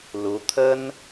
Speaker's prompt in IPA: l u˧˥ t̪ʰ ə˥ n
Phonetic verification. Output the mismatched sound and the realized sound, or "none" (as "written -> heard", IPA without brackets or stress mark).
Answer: none